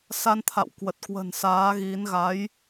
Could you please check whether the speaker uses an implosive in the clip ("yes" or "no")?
no